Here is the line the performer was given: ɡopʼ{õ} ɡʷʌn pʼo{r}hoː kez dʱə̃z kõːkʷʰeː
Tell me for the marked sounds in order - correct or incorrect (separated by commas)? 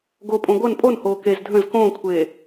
correct, incorrect